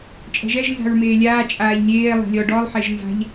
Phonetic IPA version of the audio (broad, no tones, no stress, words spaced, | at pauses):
t͡ʃʼɛ̤ʒɛʒ nza̤ɹmeːlʲaː t͡ʃʼaːʎlʲeː lˠe̤lʲɔ ɖɔlˠ ħeʒnza̤ʎ